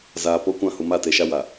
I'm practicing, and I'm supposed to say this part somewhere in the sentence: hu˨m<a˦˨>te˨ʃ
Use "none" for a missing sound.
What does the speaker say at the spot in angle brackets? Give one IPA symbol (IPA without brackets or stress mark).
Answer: a˦˨